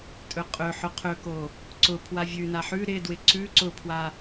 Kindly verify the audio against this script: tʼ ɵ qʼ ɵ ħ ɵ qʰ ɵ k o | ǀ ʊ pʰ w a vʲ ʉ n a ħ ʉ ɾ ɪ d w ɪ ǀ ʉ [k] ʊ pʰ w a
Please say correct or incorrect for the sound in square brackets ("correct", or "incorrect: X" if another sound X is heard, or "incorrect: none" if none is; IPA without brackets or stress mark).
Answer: incorrect: ǀ